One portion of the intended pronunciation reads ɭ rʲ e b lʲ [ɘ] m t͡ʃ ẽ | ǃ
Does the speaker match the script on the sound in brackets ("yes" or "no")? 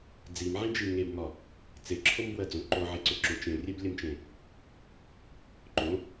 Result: yes